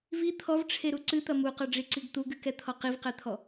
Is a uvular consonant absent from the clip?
no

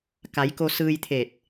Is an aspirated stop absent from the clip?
no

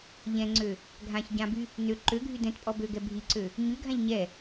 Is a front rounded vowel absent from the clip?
no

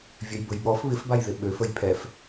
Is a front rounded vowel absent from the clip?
no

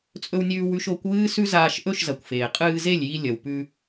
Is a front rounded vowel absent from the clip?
yes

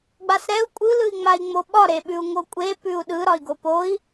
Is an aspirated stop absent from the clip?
yes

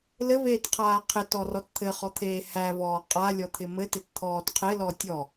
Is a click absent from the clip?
yes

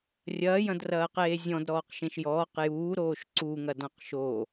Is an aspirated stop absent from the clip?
yes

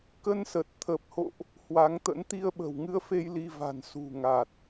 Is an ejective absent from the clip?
yes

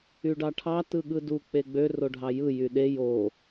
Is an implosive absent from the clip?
no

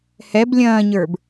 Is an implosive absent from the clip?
yes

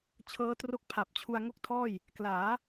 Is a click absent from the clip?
yes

